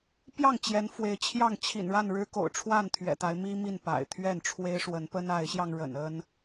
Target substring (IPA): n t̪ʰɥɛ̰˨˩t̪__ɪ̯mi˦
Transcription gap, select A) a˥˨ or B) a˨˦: B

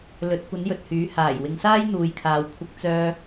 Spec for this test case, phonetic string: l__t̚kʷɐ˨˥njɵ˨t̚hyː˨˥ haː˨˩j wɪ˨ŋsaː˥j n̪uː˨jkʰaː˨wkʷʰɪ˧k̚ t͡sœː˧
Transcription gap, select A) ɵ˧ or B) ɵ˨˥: B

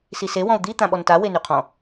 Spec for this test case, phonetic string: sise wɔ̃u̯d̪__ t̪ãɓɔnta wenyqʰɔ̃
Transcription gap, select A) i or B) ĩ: A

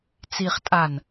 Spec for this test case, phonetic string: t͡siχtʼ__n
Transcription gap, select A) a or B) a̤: A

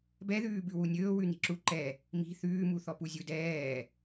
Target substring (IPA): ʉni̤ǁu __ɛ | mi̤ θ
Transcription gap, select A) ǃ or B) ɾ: A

